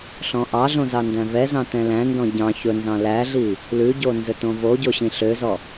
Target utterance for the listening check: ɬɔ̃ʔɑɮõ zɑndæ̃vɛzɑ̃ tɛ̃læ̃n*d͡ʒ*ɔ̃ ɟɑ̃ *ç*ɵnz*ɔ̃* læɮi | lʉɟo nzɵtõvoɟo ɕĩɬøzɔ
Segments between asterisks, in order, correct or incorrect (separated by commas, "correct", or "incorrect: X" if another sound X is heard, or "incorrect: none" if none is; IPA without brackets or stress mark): incorrect: d, correct, incorrect: ɑ̃